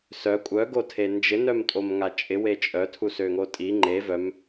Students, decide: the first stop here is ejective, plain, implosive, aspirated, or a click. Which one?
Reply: ejective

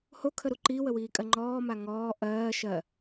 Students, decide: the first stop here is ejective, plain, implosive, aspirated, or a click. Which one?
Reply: aspirated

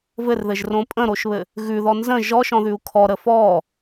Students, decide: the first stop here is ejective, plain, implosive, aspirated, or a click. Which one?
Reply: ejective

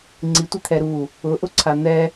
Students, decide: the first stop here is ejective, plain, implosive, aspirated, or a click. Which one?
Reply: click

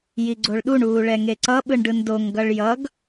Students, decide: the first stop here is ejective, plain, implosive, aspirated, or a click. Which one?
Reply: click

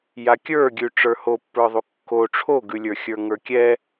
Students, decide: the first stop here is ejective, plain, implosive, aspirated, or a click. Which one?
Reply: plain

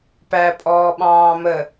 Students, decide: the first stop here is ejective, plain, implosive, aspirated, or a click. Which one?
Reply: plain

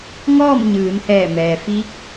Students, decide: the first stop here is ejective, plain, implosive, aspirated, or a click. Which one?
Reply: plain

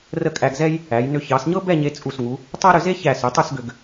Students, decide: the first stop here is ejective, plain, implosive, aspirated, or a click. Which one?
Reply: ejective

